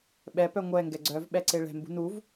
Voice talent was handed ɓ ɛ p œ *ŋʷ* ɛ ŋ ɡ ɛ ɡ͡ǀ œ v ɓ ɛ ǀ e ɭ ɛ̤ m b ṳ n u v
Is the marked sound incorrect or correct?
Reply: correct